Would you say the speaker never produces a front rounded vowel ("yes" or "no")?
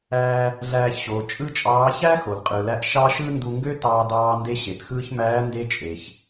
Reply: no